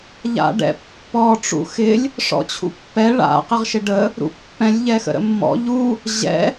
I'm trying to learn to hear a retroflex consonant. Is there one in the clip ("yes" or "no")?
yes